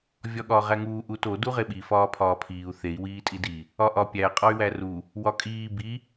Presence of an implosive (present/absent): present